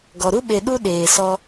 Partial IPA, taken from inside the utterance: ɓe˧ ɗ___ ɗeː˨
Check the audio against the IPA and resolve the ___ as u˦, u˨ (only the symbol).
u˦